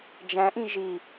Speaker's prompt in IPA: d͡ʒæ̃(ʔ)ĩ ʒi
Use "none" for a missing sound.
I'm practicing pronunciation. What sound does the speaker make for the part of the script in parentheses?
ʔ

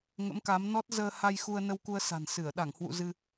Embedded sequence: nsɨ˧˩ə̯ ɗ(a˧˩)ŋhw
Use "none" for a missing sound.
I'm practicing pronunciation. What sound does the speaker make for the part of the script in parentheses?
a˧˩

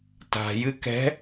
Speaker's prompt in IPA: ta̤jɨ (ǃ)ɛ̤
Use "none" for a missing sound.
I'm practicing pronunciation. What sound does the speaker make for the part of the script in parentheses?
k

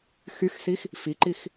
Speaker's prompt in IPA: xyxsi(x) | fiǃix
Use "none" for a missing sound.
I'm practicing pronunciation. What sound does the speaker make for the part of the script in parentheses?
x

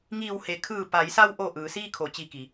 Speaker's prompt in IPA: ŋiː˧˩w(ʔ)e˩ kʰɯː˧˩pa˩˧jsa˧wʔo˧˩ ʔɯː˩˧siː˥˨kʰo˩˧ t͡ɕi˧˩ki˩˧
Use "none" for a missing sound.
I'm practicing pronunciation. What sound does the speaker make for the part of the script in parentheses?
h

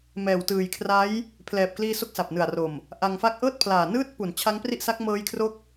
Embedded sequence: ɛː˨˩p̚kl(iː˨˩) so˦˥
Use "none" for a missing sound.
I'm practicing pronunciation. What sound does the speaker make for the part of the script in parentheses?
iː˧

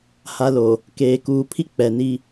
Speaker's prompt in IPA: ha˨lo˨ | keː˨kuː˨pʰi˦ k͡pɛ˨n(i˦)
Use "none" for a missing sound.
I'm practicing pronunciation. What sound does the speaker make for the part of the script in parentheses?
i˦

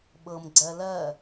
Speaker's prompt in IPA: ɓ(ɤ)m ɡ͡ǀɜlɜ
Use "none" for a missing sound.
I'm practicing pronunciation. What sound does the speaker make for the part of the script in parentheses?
ɤ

